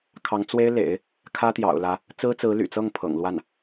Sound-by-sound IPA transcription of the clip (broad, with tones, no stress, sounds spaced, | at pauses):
kʰ ɑ˧˥ ŋ t͡s w e˥ ɪ̯ l ḛ˨˩˦ ɪ̯ | kʰ ä˥ t̪ j ɑ̰˨˩ ʊ̯ l ä˧˥ | t͡s ɹ̩˥ t͡s ɹ̩˧˥ l y̰˨˩ t͡s ɤ˥˩ ŋ pʰ ɤ̰˨˩ ŋ l w a˥˩ n